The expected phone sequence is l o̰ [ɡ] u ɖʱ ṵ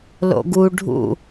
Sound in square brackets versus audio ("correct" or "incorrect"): correct